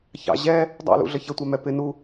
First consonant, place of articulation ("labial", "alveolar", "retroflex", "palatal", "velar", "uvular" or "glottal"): palatal